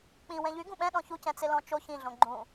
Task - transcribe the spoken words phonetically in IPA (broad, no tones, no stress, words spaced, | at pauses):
k͡pĩ wɛ̃ʎy ɡũɓɛ̃ ɗɔ̃çu cɛ̃t͡sɪlɔ̃t͡ʃo çĩ ɮõɡ͡ǃũ